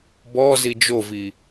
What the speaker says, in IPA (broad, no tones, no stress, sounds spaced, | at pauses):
b ɔ z i d͡ʒ o v i